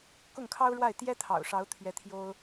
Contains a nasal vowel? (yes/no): no